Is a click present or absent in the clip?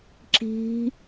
present